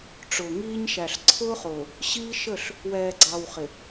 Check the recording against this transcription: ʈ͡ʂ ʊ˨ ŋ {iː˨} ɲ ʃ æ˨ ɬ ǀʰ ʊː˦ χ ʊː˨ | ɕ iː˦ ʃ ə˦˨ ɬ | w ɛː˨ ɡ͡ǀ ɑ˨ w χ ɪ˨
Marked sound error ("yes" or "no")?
yes